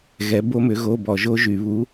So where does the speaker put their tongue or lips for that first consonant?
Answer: velum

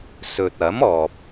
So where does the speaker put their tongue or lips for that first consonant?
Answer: tongue tip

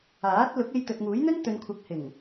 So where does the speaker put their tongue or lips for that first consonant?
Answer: tongue tip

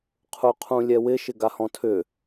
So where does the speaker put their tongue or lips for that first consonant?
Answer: uvula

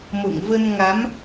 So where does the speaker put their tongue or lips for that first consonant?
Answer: lips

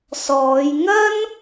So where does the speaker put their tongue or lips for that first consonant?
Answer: tongue tip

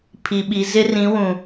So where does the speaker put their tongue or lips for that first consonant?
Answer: lips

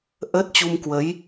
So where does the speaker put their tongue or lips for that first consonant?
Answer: throat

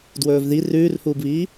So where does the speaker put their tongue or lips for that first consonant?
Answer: tongue tip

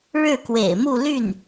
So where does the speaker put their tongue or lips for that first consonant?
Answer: retroflex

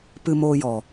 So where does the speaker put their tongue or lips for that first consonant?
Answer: lips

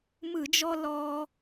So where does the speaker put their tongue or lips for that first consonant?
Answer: lips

